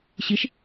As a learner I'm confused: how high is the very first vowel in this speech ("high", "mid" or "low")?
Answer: high